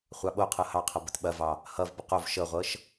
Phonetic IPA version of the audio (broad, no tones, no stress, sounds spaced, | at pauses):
χʷ ɑ ɓ o qʰ ɤ h ɑ qʰ ʌ b ə t ɓ ɐ v ɑ | h ʌ v b ə q o v ʃ ɤ ʁʷ ɤ ʃ